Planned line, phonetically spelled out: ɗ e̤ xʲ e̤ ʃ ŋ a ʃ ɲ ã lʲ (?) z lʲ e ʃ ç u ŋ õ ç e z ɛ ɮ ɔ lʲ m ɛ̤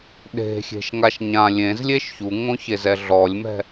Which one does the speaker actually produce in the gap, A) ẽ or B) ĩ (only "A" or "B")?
A